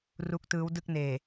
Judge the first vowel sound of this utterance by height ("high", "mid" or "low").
high